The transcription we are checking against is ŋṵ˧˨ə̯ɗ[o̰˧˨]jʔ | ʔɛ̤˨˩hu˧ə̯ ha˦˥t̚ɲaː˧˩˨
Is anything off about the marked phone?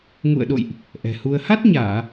no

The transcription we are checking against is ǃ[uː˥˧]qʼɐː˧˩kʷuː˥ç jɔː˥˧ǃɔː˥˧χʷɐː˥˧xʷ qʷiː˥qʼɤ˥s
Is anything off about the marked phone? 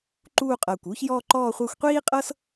no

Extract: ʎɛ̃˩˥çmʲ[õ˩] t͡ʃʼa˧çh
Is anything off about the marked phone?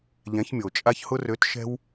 yes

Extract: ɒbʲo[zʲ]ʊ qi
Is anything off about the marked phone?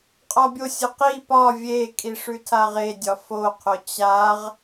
yes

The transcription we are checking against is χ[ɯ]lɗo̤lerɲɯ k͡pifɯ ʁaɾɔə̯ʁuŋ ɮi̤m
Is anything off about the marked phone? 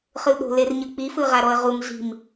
no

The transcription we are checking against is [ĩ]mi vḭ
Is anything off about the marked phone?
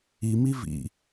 yes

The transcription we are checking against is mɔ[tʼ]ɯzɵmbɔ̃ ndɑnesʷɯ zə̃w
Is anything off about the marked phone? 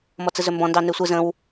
yes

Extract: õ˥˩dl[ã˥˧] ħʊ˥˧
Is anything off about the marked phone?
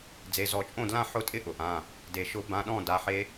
no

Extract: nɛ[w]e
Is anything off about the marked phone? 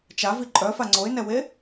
no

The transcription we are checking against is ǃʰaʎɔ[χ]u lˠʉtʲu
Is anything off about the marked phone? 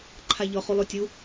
no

